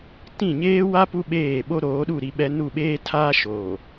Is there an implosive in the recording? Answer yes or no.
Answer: yes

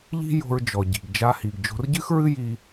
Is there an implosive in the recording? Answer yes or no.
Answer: no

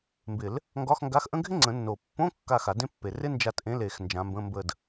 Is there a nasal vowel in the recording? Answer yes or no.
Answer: yes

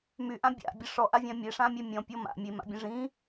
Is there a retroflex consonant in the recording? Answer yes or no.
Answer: yes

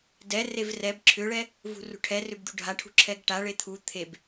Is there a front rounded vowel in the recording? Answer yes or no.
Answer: yes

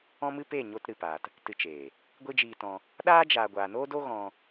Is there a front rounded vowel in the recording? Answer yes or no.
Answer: no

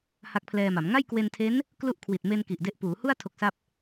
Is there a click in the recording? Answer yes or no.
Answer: no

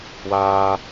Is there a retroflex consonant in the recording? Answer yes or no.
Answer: no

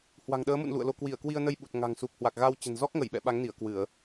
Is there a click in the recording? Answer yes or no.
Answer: no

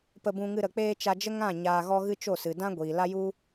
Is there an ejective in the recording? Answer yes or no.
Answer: no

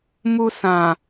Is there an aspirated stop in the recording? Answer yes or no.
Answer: no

